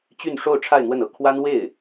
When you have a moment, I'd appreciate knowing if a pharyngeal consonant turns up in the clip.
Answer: no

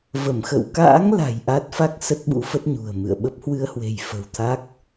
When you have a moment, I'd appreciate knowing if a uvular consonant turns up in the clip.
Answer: no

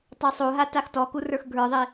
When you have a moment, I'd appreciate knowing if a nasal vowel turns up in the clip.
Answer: no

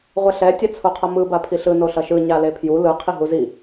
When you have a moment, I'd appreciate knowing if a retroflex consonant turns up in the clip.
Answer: no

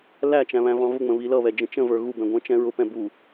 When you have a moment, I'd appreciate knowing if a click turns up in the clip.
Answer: no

